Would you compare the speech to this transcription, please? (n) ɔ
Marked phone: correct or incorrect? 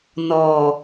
correct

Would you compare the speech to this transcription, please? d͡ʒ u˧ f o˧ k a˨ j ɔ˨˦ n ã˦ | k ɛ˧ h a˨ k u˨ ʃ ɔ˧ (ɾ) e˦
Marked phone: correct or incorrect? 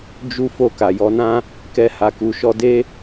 incorrect: d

